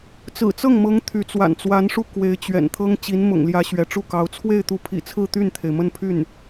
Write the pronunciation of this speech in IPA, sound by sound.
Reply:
t͡s ɹ̩˨˩ t͡s ɤ˥˩ ŋ m ɤ˧˥ ŋ t̪ʰ y˧˥ t͡s w a̰˨˩ n t͡s w a˧˥ n ʂ u˥˩ k w e˧˥ ɪ̯ t͡ɕ ɥ ɛ̰˨˩ n t̪ʰ ɤ˥ ŋ t͡ɕ i˧˥ n m ʊ̰˨˩ ŋ l j ä˧˥ ɕ ɥ ɛ˧˥ ʈ͡ʂ u˥˩ k ɑ˧˥ ʊ̯ t͡sʰ w e˥˩ ɪ̯ t̪ u˧˥ pʰ ḭ˨˩ t͡sʰ ɹ̩˥˧ t̪ y˥˩ n t̪ʰ e˩ ɪ̯ m ə˥˧ n pʰ y˥˩ n

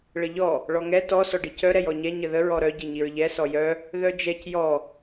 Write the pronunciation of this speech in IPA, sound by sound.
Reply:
ɭ ə ʎ ɔ | ɭ ɔ ŋ ɛ t ɔ s ɔ ɖ i c œ ɾ ɛ j ɔ ɲ ɛ ɲ ə ð ə ɹ ɔ ɾ œ ɟ i ɲ i ɹ ʎ ɛ s ɔ j œ | ð œ d͡ʒ ɛ c j ɔ

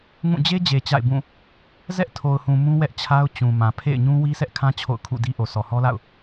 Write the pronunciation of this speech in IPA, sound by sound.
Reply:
ŋ ũ˦˨ d͡ʑ e˦ d͡ʑ e˨ t͡ɕ a̰˦˨ ɪ̯ b ũ˦˨ | z ɛ˦ ʔ tʰ o˨ ʊ̯ h ũ˨ m ũ˦ w ɛ˦ ʔ t͡ɕʰ a˦ ʊ̯ t͡ɕ ũ˨ m ã˨ pʰ ḛ˦˨ ɪ̯ ɲ ũ˦ w i˦ sʰ ɛ˦ ʔ kʰ ã˦ t͡ɕʰ o̰˦˨ ʊ̯ kʰ ṵ˦˨ d i˦ ʔ o˨ sʰ ɔ˨ h ɔ˦ l a̰˦˨ ʊ̯

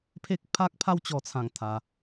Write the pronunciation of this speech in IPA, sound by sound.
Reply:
pʰ e˦ k̚ pʰ a˦ k̚ pʰ a˦ w t͡ɕ ɔ˧ t͡sʰ ã˥˧ ŋ t̪ʰ a˧

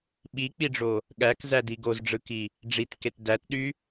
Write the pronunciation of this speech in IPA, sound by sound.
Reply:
ɓ i k͡p i ɖ͡ʐ o | ɠ æ k z æ d i ɡ o z ɖ͡ʐ ɯ k i | ɖ͡ʐ i t k e t d æ t ɗ y

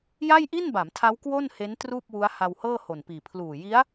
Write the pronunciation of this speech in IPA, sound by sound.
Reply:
j a˥˩ j ʔ i˥˩ n b a˩˦ m tʰ a˦˥ w k w o˥˩ n h e˦˥ n t r uː˥˩ p̚ w u˦˥ a̯ h a˧ w h ɤː˥˩ h o˨˩ n p iː˨˩ pʰ l uː˨˩ j i˦˥ a̯

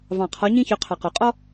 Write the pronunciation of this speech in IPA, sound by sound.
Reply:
v ɑ̃˨˩ qʰ ɔ˨˦ ɲ ĩ˦ ç ø˨˦ qʰ ɑ˨˩ q o˨˩˦ qʼ ɔ˦

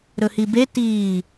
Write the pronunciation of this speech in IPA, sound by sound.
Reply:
ɾ ɵ h i b e t iː

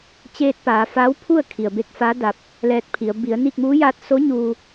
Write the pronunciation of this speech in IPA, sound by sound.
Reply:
t͡ɕ eː˧ t̚ p aː˩˧ f a˧˥ w pʰ u˥˨ ə̯ kʰ i˩ ə̯ b e˧˥ k̚ f a˧˥ d a˧ p̚ | l ɛː˧ t̚ pʰ i˩˧ ə̯ b i˩˧ ə̯ n iː˥˨ k̚ m uː˧˥ j aː˧˥ t̚ s o˧˥ ɲ uː˧

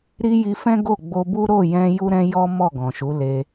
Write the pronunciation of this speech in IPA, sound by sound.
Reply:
ɾ i˧ j i˧ f ɛ̃˦ ɡ o˦˨ ɡ͡b o˧ b u˦ ɾ o˦˨ j ɛ̃˧ j u˦ ɾ ɛ̃˦ j ɔ˦ m ɔ˦˨ ɡ ɔ̃˨ ʃ u˨˦ l e˧

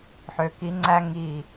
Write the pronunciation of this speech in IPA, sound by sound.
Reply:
ħ ø˨ k i˧ ŋ͡ǀ æ˦ ŋ i˨

